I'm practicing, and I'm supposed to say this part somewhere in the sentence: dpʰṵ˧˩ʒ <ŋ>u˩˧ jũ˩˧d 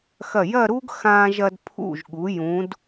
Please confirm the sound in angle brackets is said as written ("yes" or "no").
no